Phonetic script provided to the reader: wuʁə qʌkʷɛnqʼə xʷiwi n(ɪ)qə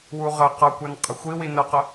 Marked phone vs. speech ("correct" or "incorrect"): incorrect